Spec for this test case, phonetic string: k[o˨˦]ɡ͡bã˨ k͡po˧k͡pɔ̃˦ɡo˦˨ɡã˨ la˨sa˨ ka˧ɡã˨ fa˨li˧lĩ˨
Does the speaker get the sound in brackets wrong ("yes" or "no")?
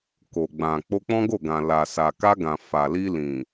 yes